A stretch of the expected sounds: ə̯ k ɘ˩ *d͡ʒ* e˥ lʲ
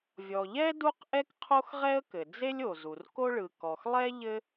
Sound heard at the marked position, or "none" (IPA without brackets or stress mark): d͡z